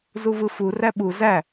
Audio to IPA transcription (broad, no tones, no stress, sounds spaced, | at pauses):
z u v ɯ f u r æ ɓ u z æ